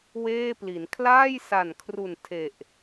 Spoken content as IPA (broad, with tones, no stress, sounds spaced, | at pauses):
w eː˥˩ p l i˩˦ n kʰ l aː˥˩ j s a˨˩ n kʰ r u˨˩ n tʰ e˨˩ ʔ